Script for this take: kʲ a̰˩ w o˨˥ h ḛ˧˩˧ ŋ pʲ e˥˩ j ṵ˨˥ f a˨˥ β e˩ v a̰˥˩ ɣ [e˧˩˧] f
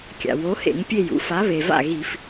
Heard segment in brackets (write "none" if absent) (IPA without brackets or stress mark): i˧˩˧